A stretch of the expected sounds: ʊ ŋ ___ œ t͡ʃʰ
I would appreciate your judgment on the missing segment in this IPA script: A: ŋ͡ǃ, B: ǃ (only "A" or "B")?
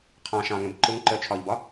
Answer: B